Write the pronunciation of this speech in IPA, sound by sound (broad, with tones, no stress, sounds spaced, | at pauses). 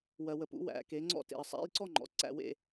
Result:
w ɜ˨ w ə˨ p ṵ˩˥ w æ̰˩˥ k e˩˥ ŋ͡ǀ ɔ̰˥˧ t ḛ˨ ə̯ sˤ æ̰˧˥˧ j ǀ ɔ˥˧ ŋ͡ǃ ɔ̰˩˥ ǀ æ̰˥˧ w ḛ˥˧